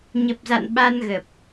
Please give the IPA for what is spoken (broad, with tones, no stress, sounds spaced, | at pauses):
ɲ ə˨˩ p̚ z a̰˧˨ n ɓ a˧ n ɣ ə˨˩ p̚